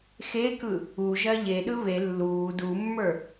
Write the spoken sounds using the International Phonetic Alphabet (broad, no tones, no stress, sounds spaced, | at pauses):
x e k ɯ | u ʒ ɜ ʎ e ɗ ɯ β e lː uː d u mː ə˞